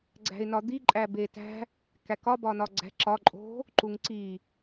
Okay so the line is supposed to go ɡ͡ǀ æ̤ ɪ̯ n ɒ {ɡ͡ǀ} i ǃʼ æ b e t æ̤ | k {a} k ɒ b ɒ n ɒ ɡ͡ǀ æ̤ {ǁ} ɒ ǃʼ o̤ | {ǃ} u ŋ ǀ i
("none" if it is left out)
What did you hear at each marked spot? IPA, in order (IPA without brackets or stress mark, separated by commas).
d̪, æ, ǁ, ǃ